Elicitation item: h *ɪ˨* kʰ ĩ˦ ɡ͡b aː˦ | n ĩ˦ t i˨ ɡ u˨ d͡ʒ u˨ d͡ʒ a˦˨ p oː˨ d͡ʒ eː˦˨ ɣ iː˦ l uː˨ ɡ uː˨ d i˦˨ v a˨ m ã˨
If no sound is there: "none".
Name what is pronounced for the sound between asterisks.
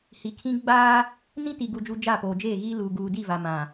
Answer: i˨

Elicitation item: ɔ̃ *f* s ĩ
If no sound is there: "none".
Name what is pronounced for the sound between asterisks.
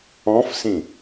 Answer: f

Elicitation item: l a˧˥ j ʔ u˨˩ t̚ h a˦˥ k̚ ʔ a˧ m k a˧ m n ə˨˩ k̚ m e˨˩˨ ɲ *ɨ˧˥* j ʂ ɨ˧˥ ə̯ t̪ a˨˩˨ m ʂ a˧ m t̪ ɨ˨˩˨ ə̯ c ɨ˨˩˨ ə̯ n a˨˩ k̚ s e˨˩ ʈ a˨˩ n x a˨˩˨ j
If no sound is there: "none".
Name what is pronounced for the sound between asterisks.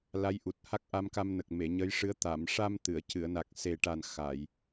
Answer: ə˧˥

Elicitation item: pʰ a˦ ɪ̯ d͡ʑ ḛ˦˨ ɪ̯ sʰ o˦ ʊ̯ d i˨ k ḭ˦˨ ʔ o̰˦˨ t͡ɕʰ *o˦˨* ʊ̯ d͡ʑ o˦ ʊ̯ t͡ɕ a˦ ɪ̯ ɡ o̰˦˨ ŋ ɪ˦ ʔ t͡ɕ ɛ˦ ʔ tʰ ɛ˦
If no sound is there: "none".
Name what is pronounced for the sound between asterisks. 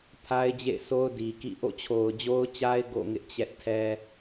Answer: o˨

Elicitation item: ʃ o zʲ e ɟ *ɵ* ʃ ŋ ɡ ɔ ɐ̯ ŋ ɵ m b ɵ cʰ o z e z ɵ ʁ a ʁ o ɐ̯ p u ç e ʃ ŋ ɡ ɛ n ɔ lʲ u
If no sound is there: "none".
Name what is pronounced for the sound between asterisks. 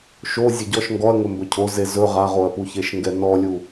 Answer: ɔ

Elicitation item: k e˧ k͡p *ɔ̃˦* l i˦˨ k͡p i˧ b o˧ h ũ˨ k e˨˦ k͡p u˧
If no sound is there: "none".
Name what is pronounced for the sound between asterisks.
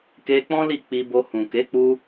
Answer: ɔ̃˦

